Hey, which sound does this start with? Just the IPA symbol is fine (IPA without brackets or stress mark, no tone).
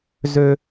z